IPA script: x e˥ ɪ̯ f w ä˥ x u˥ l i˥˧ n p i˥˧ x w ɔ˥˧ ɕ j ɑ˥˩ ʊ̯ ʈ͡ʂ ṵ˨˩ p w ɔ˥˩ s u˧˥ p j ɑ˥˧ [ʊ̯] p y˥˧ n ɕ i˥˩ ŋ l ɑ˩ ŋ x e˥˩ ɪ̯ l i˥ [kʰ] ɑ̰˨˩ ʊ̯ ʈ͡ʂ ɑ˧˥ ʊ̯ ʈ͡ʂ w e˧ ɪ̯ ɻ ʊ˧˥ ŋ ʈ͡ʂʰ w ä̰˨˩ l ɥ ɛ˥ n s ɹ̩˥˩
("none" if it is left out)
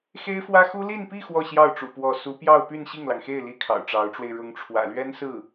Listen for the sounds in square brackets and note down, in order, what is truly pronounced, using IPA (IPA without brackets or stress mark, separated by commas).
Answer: ʊ̯, kʰ